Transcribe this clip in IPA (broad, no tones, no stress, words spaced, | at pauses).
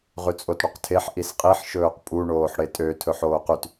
ʁʉt͡sʼotɽyqtʰeħ ʔisqʼiħ ʃɵːqpʼu ɳoːħɽetʼø tʰɵħoːqyt